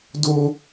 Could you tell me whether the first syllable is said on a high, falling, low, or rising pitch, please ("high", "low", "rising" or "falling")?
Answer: low